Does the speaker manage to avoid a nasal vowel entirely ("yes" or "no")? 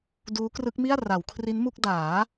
yes